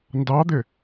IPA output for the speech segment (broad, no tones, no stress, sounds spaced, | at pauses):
n d ɑ d̪ ɪ